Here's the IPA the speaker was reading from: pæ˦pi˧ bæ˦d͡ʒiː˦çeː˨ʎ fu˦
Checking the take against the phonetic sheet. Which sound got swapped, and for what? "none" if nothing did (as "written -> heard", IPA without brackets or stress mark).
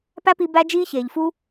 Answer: none